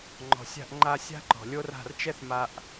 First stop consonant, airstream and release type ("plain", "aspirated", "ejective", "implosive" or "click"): click